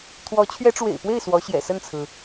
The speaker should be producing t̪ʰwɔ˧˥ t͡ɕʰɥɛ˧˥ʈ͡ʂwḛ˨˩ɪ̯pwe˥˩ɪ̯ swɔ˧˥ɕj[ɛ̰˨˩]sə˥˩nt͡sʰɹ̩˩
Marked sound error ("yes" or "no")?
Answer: no